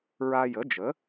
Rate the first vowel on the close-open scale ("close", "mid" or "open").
open